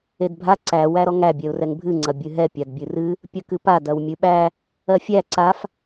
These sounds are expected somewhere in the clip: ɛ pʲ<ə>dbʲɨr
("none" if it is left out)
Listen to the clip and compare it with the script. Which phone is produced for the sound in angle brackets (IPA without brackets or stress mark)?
a